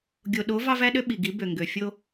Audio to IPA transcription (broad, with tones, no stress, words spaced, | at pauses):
ɡʲo˨ɗo˨˦ vɑ˦væ˦ɗø˦ ɓi˨ɡi˨˦ bø˨ŋɡø˨ fʲo˦